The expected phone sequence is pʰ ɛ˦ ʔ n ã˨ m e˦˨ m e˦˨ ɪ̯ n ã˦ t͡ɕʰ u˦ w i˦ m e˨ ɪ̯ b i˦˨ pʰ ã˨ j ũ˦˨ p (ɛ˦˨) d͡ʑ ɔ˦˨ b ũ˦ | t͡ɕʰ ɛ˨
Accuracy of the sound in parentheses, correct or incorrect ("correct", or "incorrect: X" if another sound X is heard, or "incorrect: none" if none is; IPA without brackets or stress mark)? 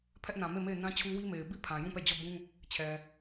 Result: correct